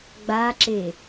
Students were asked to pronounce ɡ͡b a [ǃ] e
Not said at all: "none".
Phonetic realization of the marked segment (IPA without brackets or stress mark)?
ǁ